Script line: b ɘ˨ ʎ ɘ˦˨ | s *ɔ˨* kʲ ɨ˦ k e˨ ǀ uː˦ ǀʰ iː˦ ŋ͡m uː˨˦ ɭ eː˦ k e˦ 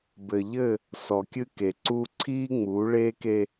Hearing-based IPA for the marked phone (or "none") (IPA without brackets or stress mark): ɔ˨